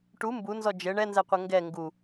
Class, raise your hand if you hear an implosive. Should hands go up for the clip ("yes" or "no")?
no